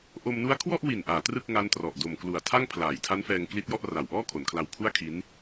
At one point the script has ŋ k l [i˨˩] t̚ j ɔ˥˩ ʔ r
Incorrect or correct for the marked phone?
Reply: incorrect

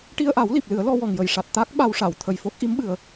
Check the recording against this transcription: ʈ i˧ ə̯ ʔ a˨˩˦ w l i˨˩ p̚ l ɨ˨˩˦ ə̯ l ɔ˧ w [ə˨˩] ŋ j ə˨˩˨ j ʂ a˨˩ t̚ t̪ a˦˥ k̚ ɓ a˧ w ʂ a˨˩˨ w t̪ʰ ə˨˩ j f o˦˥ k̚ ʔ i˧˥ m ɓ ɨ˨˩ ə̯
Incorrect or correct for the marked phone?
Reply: incorrect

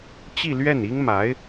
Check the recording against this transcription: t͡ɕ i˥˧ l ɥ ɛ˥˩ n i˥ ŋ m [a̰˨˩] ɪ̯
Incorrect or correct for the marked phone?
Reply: incorrect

